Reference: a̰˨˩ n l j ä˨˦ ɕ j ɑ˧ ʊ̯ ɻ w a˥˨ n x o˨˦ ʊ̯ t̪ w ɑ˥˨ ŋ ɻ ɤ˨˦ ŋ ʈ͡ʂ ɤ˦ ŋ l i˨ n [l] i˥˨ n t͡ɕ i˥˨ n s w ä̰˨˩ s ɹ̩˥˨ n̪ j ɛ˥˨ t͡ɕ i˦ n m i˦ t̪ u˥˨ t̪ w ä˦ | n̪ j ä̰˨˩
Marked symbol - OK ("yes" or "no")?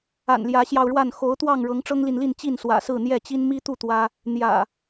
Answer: yes